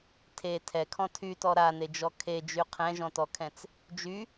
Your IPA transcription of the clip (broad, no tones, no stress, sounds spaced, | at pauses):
tʰ e tʰ ɛ kʰ ɔ̃ tʰ y t ɔ ɾ a n e d͡ʒ ɔ kʰ e d͡ʒ y qʰ ɛ̃ ʒ ɔ̃ t ɔ kʰ ɛ̃ t͡s | d͡ʒ y